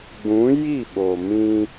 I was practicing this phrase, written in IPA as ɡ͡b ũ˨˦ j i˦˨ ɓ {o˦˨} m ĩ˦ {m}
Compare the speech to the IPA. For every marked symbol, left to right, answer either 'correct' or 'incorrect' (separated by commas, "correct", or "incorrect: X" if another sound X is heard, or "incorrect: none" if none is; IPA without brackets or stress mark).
incorrect: o˨, incorrect: none